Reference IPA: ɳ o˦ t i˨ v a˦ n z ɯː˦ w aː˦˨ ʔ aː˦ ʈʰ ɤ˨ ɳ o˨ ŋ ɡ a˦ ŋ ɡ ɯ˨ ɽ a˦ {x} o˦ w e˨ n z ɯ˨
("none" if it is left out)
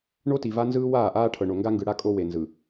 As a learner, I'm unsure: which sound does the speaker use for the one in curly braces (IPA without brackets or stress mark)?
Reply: kʼ